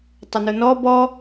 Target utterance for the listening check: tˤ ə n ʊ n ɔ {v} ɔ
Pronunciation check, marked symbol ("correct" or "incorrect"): incorrect